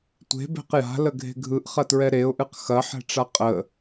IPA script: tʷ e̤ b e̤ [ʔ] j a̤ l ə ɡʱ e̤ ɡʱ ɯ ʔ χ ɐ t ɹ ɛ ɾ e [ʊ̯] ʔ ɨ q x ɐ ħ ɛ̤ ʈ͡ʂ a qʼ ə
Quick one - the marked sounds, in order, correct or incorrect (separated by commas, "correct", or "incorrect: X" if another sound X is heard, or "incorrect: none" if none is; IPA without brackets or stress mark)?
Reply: incorrect: q, correct